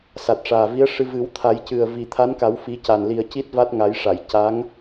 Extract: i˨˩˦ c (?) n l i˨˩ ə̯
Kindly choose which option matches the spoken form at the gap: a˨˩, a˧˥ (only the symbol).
a˨˩